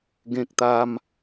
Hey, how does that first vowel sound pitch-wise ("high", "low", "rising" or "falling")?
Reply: high